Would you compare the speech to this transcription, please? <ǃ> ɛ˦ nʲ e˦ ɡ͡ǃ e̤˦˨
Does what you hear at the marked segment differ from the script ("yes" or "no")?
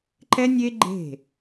no